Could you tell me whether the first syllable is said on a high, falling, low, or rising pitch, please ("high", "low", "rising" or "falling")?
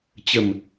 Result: low